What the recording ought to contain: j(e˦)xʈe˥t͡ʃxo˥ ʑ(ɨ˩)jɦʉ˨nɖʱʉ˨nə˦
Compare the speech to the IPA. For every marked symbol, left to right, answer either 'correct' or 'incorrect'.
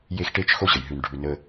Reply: correct, incorrect: ə˩

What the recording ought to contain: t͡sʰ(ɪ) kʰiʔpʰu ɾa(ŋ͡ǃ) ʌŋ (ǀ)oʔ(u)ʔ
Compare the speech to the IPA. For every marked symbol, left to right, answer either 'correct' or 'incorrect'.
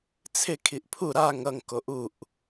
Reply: correct, incorrect: ŋ, incorrect: k, correct

